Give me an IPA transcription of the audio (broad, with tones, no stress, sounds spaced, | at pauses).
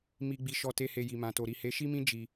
m i˧ ɡ͡b i˧ ʃ ɔ˧ t e˦ h e˧ j i˨ m ã˨ t o˨ ɾ i˨ h e˨˦ ʃ i˦ m ĩ˦ d͡ʒ i˧